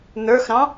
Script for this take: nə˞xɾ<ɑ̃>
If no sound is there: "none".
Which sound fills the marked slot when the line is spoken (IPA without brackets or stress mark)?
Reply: ɑ̃